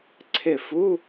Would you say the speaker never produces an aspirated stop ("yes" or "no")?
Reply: no